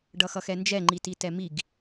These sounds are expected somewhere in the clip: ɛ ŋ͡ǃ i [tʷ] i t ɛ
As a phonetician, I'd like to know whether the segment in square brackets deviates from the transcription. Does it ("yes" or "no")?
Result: yes